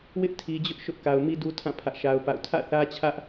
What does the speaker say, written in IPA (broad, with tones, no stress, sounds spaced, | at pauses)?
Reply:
w ɪ˦ ʔ tʰ i˨ d͡ʑ ʊ˦ ʔ ʃ ʊ˦ ʔ k a˨ ʊ̯ m i˦ d u˦ tʰ ã˦˨ pʰ ä˦ ʔ ʃ a˦ ʊ̯ p a̰˦˨ ʊ̯ tʰ ä̰˦˨ θ ä˦ t͡ɕʰ ä˦ ʔ